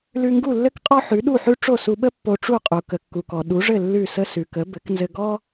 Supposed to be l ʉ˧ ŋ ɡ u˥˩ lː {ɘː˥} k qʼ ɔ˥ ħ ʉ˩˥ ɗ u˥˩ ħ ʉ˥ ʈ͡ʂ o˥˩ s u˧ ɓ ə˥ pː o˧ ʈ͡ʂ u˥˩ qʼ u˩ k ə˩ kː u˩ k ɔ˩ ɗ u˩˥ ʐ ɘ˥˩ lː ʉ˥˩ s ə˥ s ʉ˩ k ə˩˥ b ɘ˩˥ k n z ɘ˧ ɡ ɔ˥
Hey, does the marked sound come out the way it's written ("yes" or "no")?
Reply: no